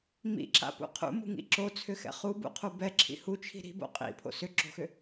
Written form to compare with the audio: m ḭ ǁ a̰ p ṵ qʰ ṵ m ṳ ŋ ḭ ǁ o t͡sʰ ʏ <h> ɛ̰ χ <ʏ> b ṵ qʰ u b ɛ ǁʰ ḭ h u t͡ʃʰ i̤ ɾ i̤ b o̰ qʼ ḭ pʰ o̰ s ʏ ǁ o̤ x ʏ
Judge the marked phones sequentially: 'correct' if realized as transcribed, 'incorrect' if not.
incorrect, incorrect

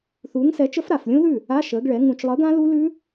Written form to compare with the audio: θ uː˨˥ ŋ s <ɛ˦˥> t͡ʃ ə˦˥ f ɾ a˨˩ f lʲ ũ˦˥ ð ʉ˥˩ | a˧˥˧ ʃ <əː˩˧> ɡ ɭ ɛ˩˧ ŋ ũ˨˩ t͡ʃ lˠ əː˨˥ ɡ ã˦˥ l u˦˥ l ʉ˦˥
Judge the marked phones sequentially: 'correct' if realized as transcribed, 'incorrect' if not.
incorrect, correct

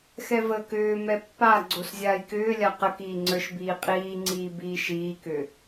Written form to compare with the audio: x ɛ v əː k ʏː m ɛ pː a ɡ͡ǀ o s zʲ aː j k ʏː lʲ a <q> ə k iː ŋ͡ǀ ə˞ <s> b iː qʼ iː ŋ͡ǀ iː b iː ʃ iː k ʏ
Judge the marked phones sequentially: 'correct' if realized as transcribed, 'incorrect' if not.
correct, incorrect

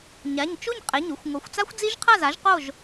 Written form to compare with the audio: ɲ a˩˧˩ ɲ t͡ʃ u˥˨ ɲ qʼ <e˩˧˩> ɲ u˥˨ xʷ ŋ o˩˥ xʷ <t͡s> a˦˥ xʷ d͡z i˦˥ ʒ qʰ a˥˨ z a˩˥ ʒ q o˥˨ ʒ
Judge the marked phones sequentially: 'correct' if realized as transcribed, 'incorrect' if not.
correct, correct

